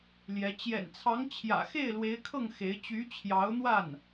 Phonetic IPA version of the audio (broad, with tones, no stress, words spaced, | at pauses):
ljɛ˧˥ t͡ɕjɛ̰˨˩nt͡sʰɑ˧˥ŋ t͡ɕʰjä̰˨˩xe˥˩ɪ̯ lwe˧˥ɪ̯kʰɤ˥˩ŋ xe˧˥ɪ̯ t͡ɕy˧˥t͡ɕʰjɑ˧˥ʊ̯n̪wa˥˩n